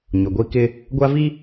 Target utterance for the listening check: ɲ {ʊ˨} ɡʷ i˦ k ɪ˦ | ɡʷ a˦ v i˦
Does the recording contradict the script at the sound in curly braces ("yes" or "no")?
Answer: no